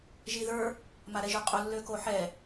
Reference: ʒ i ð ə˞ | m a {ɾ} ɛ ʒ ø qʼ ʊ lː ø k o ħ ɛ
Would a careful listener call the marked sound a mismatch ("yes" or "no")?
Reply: no